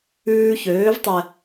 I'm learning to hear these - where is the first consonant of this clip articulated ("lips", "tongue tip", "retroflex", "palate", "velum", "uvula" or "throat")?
palate